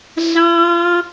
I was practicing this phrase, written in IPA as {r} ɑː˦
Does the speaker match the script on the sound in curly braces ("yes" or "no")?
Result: no